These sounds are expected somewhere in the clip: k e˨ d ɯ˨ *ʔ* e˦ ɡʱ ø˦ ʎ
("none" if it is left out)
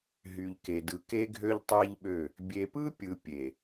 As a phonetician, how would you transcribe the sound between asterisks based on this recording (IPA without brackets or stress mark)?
k